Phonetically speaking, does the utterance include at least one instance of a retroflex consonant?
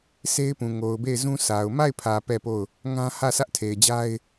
no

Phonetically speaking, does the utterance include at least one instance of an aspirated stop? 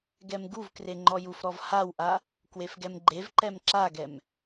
no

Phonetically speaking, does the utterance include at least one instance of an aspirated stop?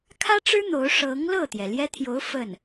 yes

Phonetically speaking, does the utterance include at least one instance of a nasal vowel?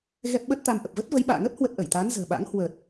no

